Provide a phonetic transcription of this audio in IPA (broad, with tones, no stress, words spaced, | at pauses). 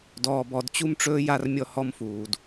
dɔː˨bɔ˨dt͡ɕu˦mʈ͡ʂɵː˦ ja˦rmʲɔ˦hɔ˦mfuː˨d